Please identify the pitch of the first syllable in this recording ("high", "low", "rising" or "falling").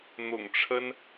low